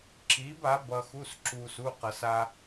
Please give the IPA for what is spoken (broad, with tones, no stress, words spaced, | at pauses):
ǁiː˨˥ba˨˥ bʌ˧xu˧˥˧sǁuː˧s u˧˥˧qʌ˧s a˧